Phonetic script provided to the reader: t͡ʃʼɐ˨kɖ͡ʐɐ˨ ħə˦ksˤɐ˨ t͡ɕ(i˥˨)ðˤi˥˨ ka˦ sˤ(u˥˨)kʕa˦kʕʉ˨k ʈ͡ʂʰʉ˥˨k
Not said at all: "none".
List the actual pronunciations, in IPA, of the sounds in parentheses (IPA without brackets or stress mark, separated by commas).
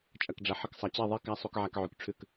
e˥˨, u˦